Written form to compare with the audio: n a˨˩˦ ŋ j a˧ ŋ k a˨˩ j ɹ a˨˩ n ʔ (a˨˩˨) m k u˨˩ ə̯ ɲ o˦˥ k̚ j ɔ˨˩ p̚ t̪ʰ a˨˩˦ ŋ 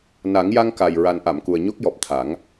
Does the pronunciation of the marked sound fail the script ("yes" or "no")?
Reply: no